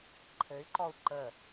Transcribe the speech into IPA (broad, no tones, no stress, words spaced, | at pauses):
ǃʰɘy̯ǃɔu̯ ǃə